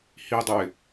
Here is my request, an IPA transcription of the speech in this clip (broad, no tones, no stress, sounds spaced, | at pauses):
h i dˤ ʊ ɪ̯